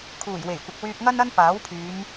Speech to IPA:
kʰ uː˨˩ j w e˨˩ j kʷ ɪ˨ k̚ w yː˧ p̚ ŋ ɐ˥ n ɐ˥ n p aː˨˥ w pʰ yː˨˧ m

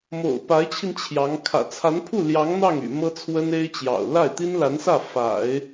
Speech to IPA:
m o̰˨˩ ʊ̯ p a˧˥ ɪ̯ t͡ɕʰ i˧ n t͡ɕʰ j ɑ˧˥ ŋ kʰ ä̰˨˩ t͡sʰ a˧˥ n pʰ u˥˩ l j ɑ˧˥ ŋ n̪ ɑ˥˩ ŋ y̰˨˩ m ɤ˥ t͡sʰ w ə˥ n e˥ ɪ̯ t͡ɕ j ɑ̰˨˩ ʊ̯ l a˥˩ ɪ̯ t̪ i˥ n l a˧˥ n s ä˥˩ f a̰˨˩˦ ɪ̯

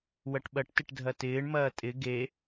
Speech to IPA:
w ɐ ʈ ɓ ɐ ʈ t ɪ ʈ dʱ ɐ t ɪː ɳ m ɐː tʼ ɪ ɡ e

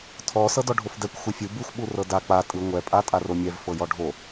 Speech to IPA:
tʰ ɔ s ɤ d ɔ ɖʱ o f d ɛ kʷ xʷ ɯ fʲ u b ɯ xʷ ɓ u r ɤ d a k͡p a tʼ ɯ ŋʷ ɛ pʼ a tʼ a r o mʲ ɛ v f ɤ j ɔ ɖʱ o

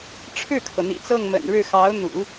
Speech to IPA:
ʈ͡ʂʰ ɻ̩˥˩ kʰ ɤ˩ n̪ ḭ˨˩ t͡s ɤ˥˩ ŋ m ə̰˨˩ n ɻ ɻ̩˥˩ x ɑ˧˥ ʊ̯ n̪ ṵ˨˩˦

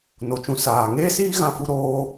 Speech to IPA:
n o˨ t͡ʃ ũ˧ s aː˨ ŋ eː˦ s iː˦ ɣ ã˦ f u˦ ɾ oː˦

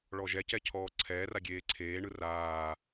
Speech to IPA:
ɭ ɔ ʒ ɛ c ɛ cʰ ɔː ǀʰ ɛː r a ɡʲ eː ǀʰ eː ɳ ɯ r aː

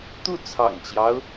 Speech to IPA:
t̪ u˥˩ t͡sʰ ɑ̰˨˩ ŋ t͡ɕ j ɑ˦ ʊ̯

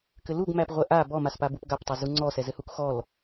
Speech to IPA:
k ɘ l u ɡ m æ p ʁʷ ɛ ʔ a b ɔ m a s p a b u p ɡ a p tˤ ɘ z u ŋ͡ǀ ɔ s ɛ z ɘ h u k x ɔ l

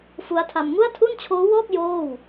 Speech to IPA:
f u˦˥ a̯ tʰ a˧ m ŋ u˥˩ a̯ tʰ u˥˩ n t͡ɕʰ oː˦˥ w ɔː˥˩ k̚ j oː˥˩ w

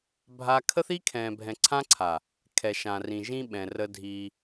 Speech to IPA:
bʱ a˦ kʰ ə˦ θ i˦ kʰ ɛ̃ː˨ bʱ ɛ̃˨ ǀʰ ã˦ ǀʰ a˨ | kʰ ɛ˨ ʃ ã˨ r ĩ˨ ʒ ĩ˦ ɓ ɛ̃˨ r ə˦ dʱ i˦

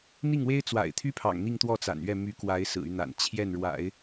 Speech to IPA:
n̪ i˥˩ ŋ w e˥ ɪ̯ t͡s w a̰˨˩ ɪ̯ t̪ʰ y˥ pʰ ɑ̰˨˩ ŋ n̪ i˥˧ ŋ t̪ w ɔ˥˩ t͡s a̰˨˩ n ɥ ɛ˥˩ m y˧˥ k w a˧˥ ɪ̯ s ɹ̩˨˩ y˦ n̪ a̰˨˩ n t͡ɕʰ j ɛ˥˩ n ɻ w a̰˨˩˦ ɪ̯

